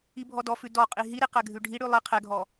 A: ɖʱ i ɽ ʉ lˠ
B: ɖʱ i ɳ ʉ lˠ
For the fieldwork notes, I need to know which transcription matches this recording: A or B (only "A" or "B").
A